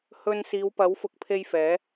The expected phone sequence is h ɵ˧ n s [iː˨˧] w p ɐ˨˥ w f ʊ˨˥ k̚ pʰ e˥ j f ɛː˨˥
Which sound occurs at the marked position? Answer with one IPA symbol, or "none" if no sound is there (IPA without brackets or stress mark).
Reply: iː˨˧